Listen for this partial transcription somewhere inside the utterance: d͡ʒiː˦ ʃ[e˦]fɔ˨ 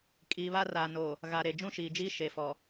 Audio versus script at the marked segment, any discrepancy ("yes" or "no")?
yes